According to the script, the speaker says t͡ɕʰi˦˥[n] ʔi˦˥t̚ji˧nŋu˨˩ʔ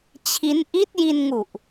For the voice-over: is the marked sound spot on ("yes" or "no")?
yes